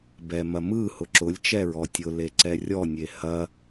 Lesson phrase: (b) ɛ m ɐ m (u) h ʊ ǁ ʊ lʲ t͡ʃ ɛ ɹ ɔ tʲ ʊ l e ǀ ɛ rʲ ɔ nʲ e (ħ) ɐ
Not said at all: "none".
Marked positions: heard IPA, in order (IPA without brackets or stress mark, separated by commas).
b, ɯ, h